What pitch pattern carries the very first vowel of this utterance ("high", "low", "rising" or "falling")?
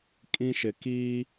high